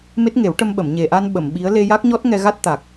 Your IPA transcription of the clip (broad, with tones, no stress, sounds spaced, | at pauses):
m e˦˥ t̚ ŋ e˨˩˦ w ʈ ə˧ m ɓ ə˨˩˨ m ɲ e˨˩ ʔ a˧ n ɓ ə˨˩˨ m ɓ i˧˥ ə̯ l e˧ j a˦˥ k̚ ɲ ɔ˦˥ t̚ ŋ ɛ˧ ɣ a˦˥ t̚ t̪ a˨˩ k̚